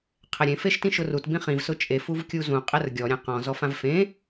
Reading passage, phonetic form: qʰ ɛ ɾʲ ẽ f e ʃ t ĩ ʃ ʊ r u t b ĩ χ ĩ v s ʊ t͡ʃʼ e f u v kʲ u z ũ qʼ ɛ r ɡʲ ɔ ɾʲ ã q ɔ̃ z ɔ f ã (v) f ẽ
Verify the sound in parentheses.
correct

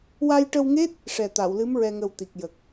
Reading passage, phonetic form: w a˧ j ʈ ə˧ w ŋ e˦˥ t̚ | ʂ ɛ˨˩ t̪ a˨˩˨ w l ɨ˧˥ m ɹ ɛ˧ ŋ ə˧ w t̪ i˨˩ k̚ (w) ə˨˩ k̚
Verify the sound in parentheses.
incorrect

